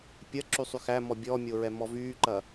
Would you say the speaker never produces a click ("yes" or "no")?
no